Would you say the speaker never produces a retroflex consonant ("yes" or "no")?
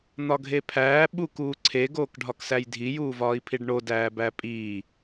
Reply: no